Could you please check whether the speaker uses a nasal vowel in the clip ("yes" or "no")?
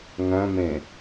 yes